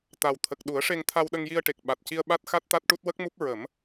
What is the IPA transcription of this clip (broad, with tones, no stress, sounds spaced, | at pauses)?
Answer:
t̪ a˨˩ w t̪ʰ ə˨˩ k̚ ɗ u˨˩˦ ə̯ ʂ e˧ ŋ t̪ʰ a˧ w ɗ ə˧ ŋ j i˧ ə̯ ʈ e˨˩ k̚ ɓ a˨˩ t̚ c i˧ ə̯ ɓ a˦˥ t̚ x a˦˥ t̚ t̪ a˦˥ t̚ ʈ u˦˥ t̚ w ə˦˥ k̚ m u˦˥ p̚ ɹ ə˨˩˦ m